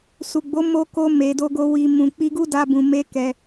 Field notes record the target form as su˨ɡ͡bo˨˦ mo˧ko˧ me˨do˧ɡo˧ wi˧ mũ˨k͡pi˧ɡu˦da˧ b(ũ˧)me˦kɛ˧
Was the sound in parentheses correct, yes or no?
yes